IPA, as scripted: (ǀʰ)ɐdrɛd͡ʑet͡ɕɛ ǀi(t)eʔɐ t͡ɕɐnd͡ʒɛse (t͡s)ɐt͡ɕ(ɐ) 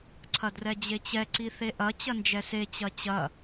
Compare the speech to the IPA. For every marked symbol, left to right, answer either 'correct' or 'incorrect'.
correct, incorrect: θ, incorrect: t͡ɕ, correct

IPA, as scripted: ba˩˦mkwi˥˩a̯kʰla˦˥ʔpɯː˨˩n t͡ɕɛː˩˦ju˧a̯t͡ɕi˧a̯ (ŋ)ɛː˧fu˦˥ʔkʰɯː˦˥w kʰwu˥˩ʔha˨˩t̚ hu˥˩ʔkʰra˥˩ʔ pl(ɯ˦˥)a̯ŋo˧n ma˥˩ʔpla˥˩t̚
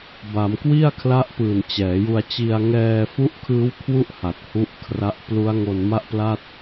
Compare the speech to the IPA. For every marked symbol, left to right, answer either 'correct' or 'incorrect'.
correct, incorrect: u˦˥

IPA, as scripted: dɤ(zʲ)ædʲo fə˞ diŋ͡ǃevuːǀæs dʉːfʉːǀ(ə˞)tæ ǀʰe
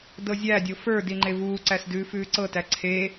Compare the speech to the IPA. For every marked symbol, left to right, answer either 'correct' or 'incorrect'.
correct, incorrect: ɤ

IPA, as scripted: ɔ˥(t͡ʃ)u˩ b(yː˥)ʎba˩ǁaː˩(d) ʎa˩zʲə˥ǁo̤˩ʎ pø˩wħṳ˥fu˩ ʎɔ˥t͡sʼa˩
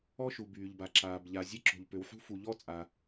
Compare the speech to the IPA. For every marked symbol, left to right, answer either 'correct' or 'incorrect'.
incorrect: ʃ, incorrect: yː˩, incorrect: b

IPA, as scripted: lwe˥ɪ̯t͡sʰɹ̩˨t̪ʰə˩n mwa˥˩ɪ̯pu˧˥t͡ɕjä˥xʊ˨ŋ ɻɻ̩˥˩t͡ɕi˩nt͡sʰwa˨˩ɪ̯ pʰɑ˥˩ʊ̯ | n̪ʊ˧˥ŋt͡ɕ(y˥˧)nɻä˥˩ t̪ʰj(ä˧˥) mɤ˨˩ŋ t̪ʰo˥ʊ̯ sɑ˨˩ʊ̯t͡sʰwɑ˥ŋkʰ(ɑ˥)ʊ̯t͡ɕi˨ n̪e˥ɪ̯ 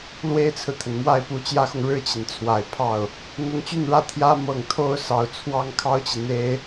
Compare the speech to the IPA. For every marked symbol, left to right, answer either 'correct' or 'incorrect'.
correct, incorrect: ä˥, correct

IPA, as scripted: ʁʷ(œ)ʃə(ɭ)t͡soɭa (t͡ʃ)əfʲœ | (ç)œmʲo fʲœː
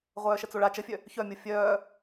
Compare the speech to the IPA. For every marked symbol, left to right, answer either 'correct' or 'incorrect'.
incorrect: œː, incorrect: none, correct, correct

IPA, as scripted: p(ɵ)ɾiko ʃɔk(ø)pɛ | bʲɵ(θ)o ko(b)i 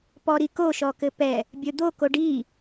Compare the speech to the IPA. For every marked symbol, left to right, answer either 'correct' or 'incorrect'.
incorrect: ɔ, incorrect: ɘ, incorrect: d̪, incorrect: ɖ

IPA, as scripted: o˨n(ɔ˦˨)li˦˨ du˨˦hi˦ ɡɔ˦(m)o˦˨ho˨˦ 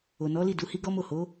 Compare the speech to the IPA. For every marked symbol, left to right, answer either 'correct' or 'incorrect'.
incorrect: ɔ˨˦, correct

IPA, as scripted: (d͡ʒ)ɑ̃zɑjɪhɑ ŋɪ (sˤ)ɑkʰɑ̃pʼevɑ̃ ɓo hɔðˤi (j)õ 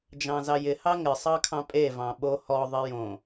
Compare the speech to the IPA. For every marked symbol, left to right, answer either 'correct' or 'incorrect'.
correct, correct, correct

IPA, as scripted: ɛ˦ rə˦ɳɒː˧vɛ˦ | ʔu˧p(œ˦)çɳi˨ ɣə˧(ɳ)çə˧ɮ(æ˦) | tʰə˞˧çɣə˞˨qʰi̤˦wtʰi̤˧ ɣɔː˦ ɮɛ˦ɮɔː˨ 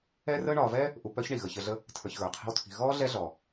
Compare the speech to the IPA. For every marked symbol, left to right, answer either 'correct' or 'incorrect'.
correct, incorrect: none, incorrect: ə˦

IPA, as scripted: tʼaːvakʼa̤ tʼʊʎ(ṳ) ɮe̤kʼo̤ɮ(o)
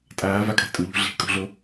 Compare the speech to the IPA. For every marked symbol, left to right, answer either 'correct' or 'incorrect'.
correct, correct

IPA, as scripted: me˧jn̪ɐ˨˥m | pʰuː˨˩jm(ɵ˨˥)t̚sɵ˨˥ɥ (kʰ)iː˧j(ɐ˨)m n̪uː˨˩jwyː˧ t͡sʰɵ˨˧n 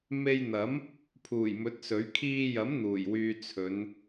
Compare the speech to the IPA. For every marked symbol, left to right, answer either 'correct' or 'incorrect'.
correct, correct, incorrect: ɐ˨˥

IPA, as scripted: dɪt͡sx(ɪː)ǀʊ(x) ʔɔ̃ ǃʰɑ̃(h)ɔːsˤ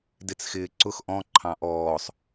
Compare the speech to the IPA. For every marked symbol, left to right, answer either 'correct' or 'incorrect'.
correct, correct, incorrect: ʔ

